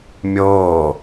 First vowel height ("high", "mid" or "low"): mid